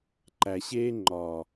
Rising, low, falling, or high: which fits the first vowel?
low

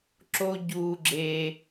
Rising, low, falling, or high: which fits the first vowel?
high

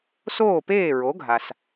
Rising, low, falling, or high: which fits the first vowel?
falling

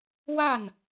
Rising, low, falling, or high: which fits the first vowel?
falling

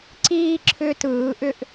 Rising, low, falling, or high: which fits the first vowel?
high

